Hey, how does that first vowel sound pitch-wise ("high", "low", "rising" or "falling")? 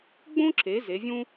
high